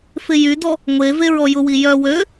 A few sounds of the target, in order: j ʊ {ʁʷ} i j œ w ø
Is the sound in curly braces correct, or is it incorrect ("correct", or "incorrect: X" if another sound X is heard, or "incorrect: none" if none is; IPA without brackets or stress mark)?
incorrect: w